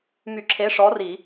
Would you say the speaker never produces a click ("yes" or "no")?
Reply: no